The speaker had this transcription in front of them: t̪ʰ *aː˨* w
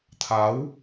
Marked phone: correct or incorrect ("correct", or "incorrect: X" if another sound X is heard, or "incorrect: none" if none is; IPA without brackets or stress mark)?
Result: incorrect: aː˨˥